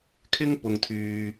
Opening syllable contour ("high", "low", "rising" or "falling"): high